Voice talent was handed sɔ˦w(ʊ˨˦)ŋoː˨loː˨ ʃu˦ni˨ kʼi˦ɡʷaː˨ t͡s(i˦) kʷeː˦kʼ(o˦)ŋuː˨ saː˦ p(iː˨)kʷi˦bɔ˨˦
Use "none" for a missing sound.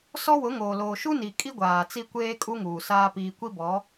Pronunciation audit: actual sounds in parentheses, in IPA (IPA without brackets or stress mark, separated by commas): ʊ˨˦, i˦, u˦, iː˨